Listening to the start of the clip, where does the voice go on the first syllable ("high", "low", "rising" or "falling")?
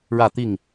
falling